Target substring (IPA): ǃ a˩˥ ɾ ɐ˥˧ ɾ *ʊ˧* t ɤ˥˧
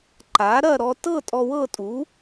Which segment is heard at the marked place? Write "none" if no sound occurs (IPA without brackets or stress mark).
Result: ɔ˧